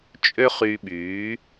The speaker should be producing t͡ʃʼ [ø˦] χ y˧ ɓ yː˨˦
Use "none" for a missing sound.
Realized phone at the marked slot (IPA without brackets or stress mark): ø˦